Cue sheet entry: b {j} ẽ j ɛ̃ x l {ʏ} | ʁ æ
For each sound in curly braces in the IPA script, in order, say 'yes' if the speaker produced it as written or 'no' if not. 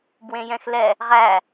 no, no

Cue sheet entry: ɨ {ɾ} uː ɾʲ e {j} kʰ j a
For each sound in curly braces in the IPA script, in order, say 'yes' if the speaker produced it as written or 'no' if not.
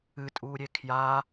no, no

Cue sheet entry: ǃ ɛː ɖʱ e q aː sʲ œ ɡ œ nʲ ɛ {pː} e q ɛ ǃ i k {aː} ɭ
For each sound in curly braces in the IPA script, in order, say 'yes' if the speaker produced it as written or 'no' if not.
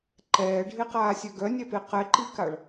no, no

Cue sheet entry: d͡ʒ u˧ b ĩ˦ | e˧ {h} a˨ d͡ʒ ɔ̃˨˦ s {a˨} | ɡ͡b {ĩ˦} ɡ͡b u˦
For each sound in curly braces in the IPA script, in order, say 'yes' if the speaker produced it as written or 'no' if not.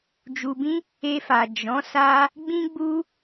no, no, yes

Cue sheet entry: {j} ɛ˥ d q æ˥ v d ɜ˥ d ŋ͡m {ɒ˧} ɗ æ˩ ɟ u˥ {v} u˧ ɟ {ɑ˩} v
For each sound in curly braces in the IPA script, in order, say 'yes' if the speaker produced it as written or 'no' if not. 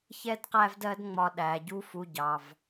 no, yes, no, yes

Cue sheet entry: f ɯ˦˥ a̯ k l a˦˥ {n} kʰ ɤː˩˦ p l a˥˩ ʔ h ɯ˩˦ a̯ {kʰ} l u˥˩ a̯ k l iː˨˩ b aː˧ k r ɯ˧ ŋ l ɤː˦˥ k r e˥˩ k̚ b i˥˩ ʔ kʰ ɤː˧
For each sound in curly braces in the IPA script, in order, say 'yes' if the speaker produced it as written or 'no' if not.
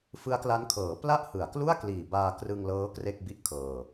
yes, no

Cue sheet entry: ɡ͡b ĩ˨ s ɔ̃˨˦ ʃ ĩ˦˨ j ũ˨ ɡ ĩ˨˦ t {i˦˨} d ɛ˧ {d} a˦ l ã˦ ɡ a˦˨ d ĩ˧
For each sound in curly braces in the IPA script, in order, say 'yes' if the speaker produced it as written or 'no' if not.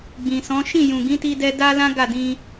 no, yes

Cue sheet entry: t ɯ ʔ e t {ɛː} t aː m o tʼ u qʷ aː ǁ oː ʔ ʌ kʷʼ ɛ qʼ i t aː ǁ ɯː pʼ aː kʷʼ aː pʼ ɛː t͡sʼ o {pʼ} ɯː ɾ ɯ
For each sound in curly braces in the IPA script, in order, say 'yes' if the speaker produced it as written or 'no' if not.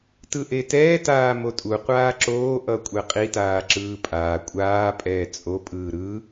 yes, yes

